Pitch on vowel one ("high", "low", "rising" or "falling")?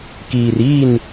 low